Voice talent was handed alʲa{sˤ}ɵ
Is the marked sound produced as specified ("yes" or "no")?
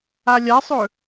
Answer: yes